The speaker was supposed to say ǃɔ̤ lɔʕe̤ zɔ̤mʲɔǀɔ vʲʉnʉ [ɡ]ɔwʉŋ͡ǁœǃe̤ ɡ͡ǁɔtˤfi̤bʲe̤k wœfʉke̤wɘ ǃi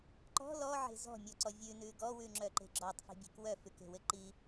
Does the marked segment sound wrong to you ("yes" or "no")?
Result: no